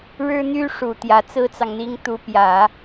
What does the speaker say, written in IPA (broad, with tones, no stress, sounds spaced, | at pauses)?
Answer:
ɻ ɻ̩˥ n̪ y˥ ʂ u˨˩ t̪ j ä˧˥ t͡s ɹ̩˥ t͡s ɑ˨ ŋ n̪ i˥ ŋ t̪ u˧˥ p j ä˨˩˦